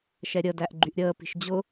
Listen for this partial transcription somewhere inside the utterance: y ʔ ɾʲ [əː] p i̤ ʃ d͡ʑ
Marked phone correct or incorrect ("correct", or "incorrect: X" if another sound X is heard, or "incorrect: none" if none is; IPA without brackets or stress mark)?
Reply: correct